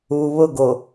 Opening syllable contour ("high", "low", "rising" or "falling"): low